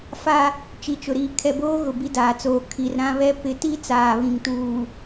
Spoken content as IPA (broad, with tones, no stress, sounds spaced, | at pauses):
f a˦ | t͡ʃ i˨ t͡ʃ ʊ˨ ɾ iː˨ kʰ ɛ˨ b oː˦ ɣ ʊ˨ b i˦ d aː˨ t͡s oː˨ kʰ i˨ r ɾ ã˦ β ɛ˦ p ɪ˨˦ t i˦ t͡s aː˨ β ĩ˨ ŋ t uː˨